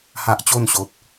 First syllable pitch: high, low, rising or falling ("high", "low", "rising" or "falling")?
high